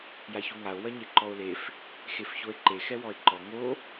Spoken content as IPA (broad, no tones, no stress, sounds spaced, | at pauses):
j a ç u ŋ a o̯ w ɐ ɲ e ǃ ɔ o̯ l e f | x e f ç o e̯ ǃ e x ɛ w ɔ e̯ ǃ ɔ ŋ o